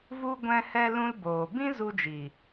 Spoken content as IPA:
vu˧ ɡʷɛ̃˧hɛ˧ lũ˧lboː˨ bĩ˦ zu˧d͡ʒi˨

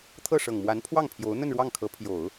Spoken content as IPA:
t̪ʰɤ˥˩ʂɤ˨˩ŋmwa˧˥n pʰwɑ˥˩ŋpʰjo˧˥ʊ̯ n̪ə˥˧nɻwɑ˥˩ŋkʰɤ˧˥ pʰjo˨˩˦ʊ̯

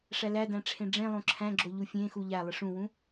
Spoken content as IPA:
ʂælædæ̃ ʈ͡ʂʰẽɖ͡ʐẽlˠõ ǁʰæ̃ɡ͡ǁo ʎufʲẽxu ʎæ lˠɪʂũwũ

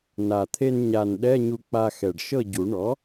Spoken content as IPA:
na˨˩t̪ʰe˧n ɲa˨˩n ɗɛ˧˥˧ɲu˧k͡pa˧ xɛ˨˩ɖʃɤ˥˨ɟu˨˩˦ ɳɔ˩˥

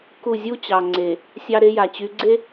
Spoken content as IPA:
ku˦˨ zʲu˦t͡ɕɑ˨ŋ͡ǀe˨ | sʲɑ˦ɾe˦ja˨t͡ɕy˨˦ ɡ͡ǀe˦

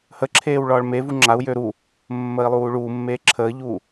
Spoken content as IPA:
həǁʰeːw ɭɒːɭmevu ŋ͡ǁau̯jø ɾu | mːəːi̯lˠuːɭuːmːeː ǁʰəːʎuː

